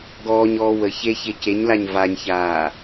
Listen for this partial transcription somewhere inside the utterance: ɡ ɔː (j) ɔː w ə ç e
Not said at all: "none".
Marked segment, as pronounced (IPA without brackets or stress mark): ɲ